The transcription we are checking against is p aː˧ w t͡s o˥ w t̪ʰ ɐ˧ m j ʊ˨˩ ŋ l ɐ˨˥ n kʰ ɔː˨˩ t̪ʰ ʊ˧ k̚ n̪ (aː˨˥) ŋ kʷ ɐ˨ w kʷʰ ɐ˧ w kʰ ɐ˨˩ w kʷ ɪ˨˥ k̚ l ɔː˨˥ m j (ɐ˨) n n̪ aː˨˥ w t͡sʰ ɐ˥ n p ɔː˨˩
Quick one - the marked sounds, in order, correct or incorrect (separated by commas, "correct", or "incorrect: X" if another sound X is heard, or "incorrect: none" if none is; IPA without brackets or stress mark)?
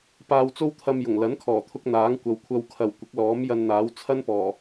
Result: correct, incorrect: ɐ˧